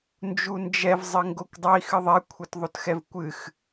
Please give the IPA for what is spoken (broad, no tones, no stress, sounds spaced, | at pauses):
n d͡ʒ u n d͡ʒ ɛ v zˤ ɘ ŋ ɡ o kʷ dˤ ɐ i̯ x ɨ ðˤ ɛ kʷʰ ɛ t ðˤ o t x ɛ v kʷ ɨ x